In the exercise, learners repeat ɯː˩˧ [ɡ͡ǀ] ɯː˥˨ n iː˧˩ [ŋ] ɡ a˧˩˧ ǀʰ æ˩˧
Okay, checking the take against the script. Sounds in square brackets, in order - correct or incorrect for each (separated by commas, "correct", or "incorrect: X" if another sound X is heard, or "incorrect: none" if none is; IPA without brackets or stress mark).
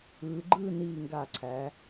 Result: incorrect: ɡ͡ǃ, correct